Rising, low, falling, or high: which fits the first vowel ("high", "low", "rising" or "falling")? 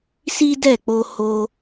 high